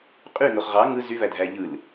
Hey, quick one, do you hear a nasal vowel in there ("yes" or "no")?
no